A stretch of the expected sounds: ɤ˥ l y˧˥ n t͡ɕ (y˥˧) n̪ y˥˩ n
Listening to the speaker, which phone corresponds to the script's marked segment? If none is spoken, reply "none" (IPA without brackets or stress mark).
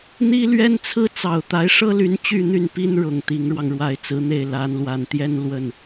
y˥˧